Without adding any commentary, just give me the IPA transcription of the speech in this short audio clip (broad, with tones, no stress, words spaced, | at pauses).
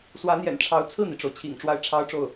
swä˧˥n̪jɛ̰˨˩nʈ͡ʂʰɑ˧˥ʊ̯ t͡sʰɹ̩˥˩n̪i˩ʈ͡ʂo˩ʊ̯ t͡ɕʰḭ˨˩ŋ ʈ͡ʂwa˥˩ɪ̯ʈ͡ʂʰɑ˥ʊ̯ʈ͡ʂo˥˩ʊ̯